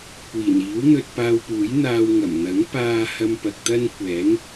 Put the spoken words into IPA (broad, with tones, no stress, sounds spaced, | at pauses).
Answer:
kʷ iː˨˩ n iː˨˥ w n̪ ɵ˧ t̚ p aː˧ w p uː˨˥ j n̪ aː˧ w ŋ ɐ˨˩ m n̪ ɐ˨˥ ŋ p aː˥ h ɐ˧ m p ɐ˨ k̚ t̪ ɐ˥ n kʷ ɛː˨˥ ŋ